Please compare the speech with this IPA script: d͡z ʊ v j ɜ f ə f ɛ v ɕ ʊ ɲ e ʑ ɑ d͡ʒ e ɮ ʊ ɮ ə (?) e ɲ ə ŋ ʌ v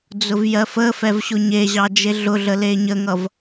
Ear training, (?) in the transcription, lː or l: l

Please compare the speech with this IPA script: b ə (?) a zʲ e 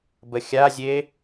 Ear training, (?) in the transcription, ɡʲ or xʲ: xʲ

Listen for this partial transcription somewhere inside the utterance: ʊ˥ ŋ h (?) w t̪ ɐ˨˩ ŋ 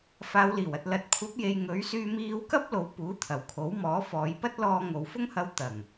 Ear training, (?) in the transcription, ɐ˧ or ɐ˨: ɐ˧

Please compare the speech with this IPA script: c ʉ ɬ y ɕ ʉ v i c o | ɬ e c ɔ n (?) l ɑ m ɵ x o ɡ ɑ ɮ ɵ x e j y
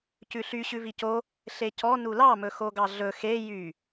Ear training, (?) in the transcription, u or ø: u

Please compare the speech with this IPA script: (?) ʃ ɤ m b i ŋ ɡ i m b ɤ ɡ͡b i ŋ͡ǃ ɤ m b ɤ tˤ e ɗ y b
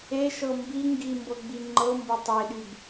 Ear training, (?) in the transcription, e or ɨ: e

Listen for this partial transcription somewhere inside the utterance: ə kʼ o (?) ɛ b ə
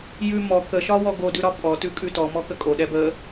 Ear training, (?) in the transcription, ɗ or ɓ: ɗ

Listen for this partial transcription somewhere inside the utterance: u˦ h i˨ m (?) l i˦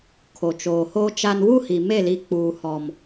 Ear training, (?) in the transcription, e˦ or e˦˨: e˦˨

